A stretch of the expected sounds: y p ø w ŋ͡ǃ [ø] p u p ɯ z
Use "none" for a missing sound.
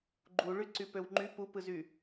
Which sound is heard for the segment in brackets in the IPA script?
y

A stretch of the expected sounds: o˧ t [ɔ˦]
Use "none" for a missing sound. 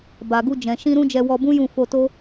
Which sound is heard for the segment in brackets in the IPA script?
o˦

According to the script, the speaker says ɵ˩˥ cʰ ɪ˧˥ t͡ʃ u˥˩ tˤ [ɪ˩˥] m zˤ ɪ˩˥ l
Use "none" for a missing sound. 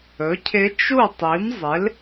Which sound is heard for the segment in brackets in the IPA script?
i˩˥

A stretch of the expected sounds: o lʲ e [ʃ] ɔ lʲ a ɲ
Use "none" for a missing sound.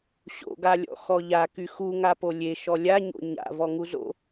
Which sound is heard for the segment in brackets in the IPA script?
ʃ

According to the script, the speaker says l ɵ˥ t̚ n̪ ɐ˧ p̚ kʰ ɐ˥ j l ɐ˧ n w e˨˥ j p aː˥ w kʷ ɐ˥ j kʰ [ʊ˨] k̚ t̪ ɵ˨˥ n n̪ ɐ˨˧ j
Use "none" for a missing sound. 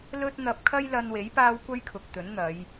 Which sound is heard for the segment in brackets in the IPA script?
ʊ˨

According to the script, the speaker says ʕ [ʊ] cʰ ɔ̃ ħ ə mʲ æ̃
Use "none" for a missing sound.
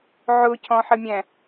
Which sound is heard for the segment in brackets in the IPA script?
ʊ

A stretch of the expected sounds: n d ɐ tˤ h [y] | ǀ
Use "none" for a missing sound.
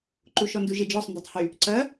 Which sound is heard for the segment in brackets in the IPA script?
y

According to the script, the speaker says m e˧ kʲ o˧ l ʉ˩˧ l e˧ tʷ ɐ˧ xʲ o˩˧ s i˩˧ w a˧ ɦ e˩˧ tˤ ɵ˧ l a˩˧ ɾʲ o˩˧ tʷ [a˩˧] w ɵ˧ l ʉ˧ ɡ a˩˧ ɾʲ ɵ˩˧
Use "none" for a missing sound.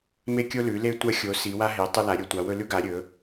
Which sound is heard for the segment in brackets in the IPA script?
a˩˧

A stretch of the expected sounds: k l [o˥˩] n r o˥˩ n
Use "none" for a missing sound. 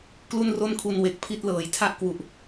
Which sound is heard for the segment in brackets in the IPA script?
u˥˩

